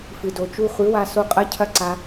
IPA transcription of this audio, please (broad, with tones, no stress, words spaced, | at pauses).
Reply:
fɨ˨do˨ t͡ʃu˧χʷɨ˨˦wa˧so˧ qʼɐ˦cʰɐ˦ǀa˧